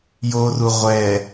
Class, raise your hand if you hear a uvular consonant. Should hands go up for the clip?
yes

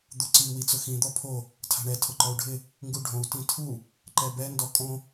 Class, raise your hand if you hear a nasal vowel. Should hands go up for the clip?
yes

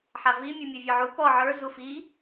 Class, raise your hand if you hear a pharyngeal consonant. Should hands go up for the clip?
yes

